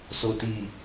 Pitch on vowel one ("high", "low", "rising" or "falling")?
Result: low